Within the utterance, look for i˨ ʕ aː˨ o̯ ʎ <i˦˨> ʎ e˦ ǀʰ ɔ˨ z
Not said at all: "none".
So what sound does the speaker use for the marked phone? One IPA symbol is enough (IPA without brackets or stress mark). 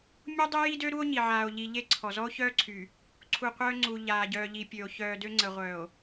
i˨